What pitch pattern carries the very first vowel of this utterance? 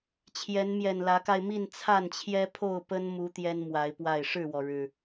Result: rising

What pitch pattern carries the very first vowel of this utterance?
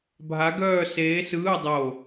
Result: rising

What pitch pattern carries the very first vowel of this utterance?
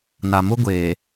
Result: low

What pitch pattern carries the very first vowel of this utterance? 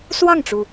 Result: falling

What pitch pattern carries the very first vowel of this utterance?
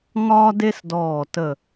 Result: high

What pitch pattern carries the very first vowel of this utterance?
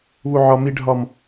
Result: low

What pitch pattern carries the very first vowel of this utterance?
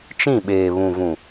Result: falling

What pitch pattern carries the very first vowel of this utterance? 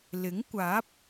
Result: rising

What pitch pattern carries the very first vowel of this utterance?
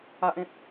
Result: low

